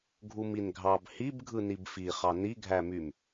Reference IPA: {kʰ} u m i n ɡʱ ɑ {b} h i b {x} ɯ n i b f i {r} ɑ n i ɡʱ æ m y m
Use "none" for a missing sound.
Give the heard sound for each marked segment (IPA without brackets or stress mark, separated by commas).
ɡʱ, b, ɡʱ, χ